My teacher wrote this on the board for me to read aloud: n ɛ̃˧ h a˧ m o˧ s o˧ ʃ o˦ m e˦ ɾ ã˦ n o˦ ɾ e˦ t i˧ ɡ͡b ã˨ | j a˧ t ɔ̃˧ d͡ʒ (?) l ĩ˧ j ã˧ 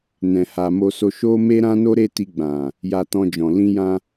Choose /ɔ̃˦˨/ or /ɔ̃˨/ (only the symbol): ɔ̃˨